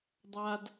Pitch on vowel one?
high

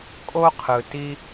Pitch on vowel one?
high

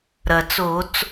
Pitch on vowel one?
low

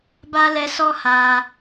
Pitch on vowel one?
high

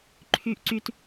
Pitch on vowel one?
low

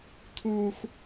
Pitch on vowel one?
low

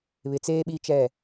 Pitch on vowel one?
low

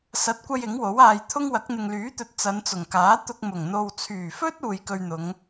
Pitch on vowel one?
rising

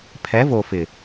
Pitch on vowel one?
rising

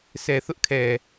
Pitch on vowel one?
low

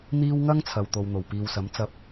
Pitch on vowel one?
high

